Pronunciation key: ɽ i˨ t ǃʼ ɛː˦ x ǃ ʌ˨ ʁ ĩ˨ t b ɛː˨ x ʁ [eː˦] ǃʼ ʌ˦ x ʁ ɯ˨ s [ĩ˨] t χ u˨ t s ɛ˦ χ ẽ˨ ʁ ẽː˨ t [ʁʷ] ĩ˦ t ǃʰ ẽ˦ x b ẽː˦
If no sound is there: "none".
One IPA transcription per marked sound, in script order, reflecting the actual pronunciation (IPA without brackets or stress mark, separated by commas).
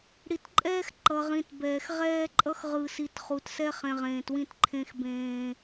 ɛː˦, i˨, w